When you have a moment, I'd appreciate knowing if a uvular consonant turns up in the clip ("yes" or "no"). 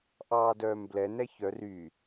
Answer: no